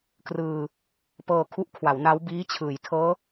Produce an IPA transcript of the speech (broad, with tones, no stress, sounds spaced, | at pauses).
k r ɯː˧ | p ɤː˧ kʰ u˦˥ ʔ kʰ w a˩˦ w n a˦˥ w b iː˦˥ t͡ɕʰ ɯː˩˦ j tʰ ɤː˦˥